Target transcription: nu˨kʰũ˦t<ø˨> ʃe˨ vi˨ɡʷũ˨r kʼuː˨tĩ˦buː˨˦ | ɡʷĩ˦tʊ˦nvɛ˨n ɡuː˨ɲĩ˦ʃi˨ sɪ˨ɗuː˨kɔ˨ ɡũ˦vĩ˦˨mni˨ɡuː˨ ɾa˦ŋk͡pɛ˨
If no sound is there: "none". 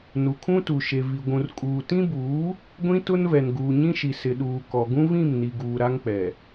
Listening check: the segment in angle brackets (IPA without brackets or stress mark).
u˨